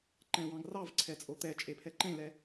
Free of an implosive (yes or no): yes